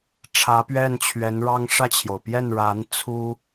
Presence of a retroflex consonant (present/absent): present